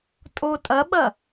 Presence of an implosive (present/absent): present